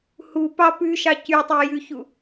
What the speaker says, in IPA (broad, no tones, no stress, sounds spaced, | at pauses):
h u p ɑ p ʉ ʃ ɑ c y tˤ i j ʉ ç u